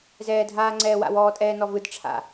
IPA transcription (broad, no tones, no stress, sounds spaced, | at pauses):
z ɛː dʱ aː ŋ͡ǀ ɛː w a̰ w ɔː tʼ ɛː n ɔ v ɯ d ʈ͡ʂʰ a̰